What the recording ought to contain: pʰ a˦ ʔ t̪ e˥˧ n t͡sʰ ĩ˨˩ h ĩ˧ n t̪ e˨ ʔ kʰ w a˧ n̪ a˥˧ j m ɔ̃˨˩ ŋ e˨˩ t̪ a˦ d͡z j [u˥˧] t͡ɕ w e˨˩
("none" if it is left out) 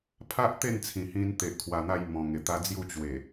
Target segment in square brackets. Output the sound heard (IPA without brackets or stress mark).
u˥˧